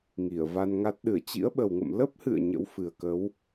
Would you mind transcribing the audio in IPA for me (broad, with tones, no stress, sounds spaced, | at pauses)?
ŋ i˧˩ ə̯ v a˧ n ŋ a˦˥ t̚ ɗ ɨ˧˩ ə̯ t͡ɕ ḭ˧˥ ə̯ ɓ ə˨˩ w ŋ ə̰˧˨ m l ə˦˥ p̚ h ɨ̰˧˨ ə̯ ɲ ə̰˧˥ w f ɨ˨˩ ə̯ k ə˨˦ w